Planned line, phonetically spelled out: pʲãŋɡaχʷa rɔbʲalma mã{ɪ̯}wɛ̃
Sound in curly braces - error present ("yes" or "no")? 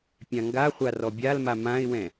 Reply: no